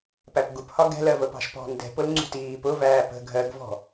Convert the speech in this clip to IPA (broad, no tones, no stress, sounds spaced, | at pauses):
p æ p ɡ u p h ɒ ɡ ɛ̤ l ɜ v ə p ɑ̤ ʃ p ɔ̤ n d ɛ̤ p ʊ l ŋ͡ǀ ṳ t iː p ʊ v æː p ə̤ ɡʱ ɜ ɡ v ɔ̤